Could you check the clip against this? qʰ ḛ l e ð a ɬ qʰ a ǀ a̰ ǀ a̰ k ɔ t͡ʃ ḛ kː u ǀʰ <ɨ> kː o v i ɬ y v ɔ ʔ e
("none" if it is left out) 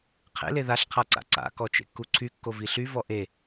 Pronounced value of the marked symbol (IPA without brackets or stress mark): y